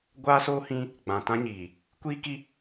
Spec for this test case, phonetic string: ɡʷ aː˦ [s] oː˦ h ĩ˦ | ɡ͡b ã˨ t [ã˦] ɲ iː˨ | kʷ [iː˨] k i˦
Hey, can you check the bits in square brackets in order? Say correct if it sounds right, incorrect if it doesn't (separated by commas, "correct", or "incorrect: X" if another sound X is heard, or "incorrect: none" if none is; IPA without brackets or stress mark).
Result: correct, correct, incorrect: iː˦